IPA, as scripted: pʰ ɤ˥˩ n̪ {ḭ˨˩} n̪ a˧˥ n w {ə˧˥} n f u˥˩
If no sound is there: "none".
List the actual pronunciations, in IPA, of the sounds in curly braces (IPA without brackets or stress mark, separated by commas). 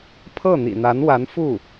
ḭ˨˩, a˧˥